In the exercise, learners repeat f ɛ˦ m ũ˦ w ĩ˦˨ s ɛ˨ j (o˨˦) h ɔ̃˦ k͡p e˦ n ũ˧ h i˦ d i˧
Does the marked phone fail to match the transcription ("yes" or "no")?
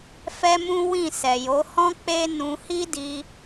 no